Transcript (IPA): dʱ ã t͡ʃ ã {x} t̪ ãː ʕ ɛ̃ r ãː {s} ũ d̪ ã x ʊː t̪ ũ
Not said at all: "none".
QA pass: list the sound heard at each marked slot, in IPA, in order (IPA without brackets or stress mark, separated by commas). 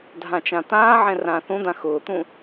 none, θ